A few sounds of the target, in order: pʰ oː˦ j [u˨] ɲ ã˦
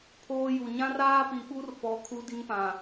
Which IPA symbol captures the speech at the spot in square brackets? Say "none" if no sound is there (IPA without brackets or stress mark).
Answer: u˨